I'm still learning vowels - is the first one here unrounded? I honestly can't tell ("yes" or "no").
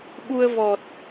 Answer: no